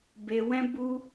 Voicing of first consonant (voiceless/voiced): voiced